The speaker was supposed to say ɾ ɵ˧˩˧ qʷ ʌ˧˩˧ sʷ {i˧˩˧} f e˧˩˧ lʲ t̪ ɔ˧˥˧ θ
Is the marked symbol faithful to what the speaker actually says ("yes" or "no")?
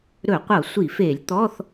yes